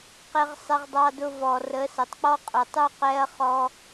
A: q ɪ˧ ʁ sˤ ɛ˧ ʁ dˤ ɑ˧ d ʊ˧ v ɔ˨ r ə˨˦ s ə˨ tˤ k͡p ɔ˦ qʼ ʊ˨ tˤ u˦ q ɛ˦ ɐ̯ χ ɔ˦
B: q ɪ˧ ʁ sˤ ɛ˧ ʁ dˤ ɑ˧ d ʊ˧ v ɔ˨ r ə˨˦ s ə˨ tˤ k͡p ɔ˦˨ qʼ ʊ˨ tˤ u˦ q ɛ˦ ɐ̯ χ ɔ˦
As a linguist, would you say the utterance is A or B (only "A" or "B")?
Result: A